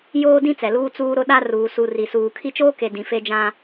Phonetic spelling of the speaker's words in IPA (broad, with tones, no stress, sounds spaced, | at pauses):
j oː˦ d ĩ˦ t͡s ɛ˨ l uː˦ t͡s uː˦ ɾ ʊ˦ ɗ a˦ r uː˨ s u˨ r i˨ s uː˨ kʰ i˦ t͡ʃ oː˦ k e˨ d ĩ˨ f e˦ d͡ʒ ã˦